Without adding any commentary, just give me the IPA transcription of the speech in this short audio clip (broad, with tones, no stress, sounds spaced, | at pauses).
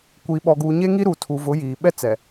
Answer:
kʷ iː˨ ɓ ɔ˨ ɡ uː˨ ɲ e˦ ŋ i˦ ɾ uː˨ tʰ u˨ v ʊ˨˦ j iː˨ ɓ ɛ˦ t͡s ɛ˨